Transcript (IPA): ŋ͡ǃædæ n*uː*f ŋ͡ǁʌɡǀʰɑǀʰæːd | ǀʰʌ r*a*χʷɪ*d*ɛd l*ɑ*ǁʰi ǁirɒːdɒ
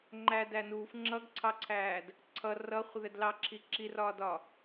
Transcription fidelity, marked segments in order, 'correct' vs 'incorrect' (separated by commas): correct, incorrect, incorrect, correct